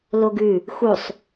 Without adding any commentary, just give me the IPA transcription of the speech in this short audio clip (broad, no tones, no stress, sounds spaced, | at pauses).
l o ɡ ʉ | x u sˤ